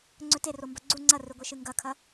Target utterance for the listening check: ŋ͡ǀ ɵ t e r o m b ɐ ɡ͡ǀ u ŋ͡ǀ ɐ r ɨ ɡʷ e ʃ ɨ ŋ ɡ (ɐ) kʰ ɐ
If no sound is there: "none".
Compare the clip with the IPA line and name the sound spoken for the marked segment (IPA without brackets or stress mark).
ɐ